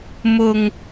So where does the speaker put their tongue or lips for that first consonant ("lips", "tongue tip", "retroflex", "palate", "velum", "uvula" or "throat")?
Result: lips